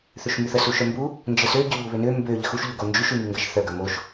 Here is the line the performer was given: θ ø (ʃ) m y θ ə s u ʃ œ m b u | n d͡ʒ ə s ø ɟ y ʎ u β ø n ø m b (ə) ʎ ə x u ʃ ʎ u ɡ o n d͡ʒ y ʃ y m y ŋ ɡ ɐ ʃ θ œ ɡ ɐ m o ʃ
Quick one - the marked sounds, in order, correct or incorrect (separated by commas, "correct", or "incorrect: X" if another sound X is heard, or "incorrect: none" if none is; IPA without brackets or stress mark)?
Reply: correct, incorrect: ø